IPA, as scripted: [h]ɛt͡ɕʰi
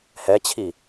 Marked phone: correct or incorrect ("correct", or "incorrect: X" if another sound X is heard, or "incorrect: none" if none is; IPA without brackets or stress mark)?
correct